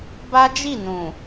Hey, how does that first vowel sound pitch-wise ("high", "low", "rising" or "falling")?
high